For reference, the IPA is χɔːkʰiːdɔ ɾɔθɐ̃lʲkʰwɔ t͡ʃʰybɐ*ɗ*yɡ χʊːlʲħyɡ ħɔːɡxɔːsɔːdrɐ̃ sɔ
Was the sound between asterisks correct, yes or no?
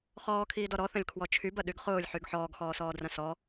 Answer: yes